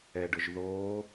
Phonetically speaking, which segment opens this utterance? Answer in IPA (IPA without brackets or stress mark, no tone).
ɛ